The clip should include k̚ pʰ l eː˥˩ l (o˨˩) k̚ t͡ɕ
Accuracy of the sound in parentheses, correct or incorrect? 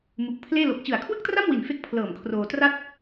correct